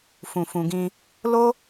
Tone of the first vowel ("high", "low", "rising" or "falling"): low